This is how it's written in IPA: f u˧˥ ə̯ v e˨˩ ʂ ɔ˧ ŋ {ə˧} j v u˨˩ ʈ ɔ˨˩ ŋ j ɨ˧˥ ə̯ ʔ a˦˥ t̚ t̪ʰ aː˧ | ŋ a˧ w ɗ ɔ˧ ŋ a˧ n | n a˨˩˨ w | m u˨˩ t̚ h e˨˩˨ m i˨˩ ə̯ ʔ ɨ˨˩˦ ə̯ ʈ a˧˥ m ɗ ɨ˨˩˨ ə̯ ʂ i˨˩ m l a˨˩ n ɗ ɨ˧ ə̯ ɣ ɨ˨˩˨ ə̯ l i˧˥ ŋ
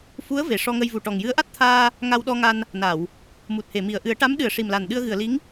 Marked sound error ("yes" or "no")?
no